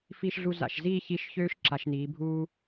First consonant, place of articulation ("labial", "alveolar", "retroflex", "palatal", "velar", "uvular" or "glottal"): labial